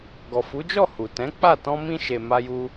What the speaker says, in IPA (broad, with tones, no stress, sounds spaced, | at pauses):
ɡ ɔ˨ f u˨˦ d͡ʒ ɔ˦˨ h u˨ t ɛ̃˨˦ k͡p a˦˨ t ɔ̃˧ m ĩ˧ ʃ e˨ m a˧ j u˧